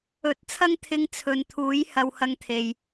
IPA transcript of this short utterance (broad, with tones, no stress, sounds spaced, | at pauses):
ɵ˨˥ t̚ t͡sʰ ɐ˥ ŋ t̪ʰ ɪ˧ ŋ t͡sʰ ɵ˨ n t̪ʰ uː˨˥ j h ɐ˧ w h ɐ˧ ŋ t̪ʰ e˨ j